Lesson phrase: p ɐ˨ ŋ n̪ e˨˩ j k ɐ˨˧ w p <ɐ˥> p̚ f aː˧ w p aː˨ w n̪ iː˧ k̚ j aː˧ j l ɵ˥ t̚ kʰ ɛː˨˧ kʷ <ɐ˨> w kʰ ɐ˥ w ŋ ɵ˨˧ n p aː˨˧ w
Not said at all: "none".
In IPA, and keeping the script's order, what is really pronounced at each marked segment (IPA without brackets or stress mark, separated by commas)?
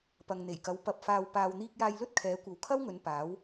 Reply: ɐ˧, ɐ˨